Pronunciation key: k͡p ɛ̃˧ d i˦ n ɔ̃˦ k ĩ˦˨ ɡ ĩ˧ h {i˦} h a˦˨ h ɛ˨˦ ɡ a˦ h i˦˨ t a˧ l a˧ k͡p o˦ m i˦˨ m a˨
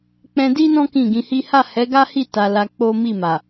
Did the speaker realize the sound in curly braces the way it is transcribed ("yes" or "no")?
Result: yes